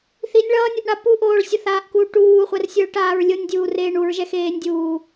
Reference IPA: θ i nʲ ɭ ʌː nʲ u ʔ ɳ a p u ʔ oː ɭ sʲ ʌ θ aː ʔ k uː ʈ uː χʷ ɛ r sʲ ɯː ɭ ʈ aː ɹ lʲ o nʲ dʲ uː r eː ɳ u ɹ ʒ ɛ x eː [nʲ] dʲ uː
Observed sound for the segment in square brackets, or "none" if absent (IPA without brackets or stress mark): nʲ